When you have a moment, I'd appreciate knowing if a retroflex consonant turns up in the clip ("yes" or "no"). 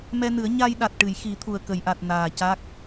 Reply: yes